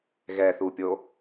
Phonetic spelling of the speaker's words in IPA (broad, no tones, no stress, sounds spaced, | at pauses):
ɣ ɛ θ u pʲ o